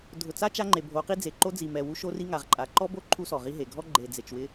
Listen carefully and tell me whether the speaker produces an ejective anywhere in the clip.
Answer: yes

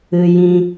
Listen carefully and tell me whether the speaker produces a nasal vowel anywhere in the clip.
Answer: yes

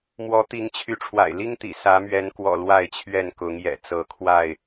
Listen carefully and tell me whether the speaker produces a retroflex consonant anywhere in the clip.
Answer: yes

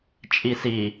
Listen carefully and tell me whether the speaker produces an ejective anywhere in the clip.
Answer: yes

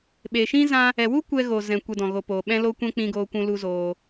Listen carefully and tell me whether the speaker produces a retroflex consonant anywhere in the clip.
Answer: no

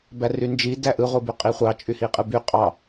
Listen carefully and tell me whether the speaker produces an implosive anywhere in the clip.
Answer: no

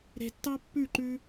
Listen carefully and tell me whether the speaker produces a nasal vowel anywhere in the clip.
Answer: no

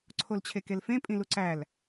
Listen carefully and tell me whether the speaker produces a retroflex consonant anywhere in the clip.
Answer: no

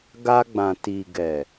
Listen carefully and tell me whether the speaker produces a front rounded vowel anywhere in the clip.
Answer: no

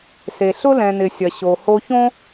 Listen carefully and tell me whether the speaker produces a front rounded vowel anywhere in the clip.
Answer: no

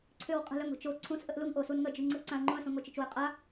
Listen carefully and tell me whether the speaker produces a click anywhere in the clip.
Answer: yes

